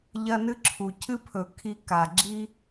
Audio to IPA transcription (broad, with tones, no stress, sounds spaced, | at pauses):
ʎ ɐ˧ n ɨ˦ ǁʰ u˨ cʰ ɨ˦ pʰ ɵ˨ kʰ i˧ k a˨ ɡ͡ǁ i˦